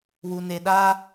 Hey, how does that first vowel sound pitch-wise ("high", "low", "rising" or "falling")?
low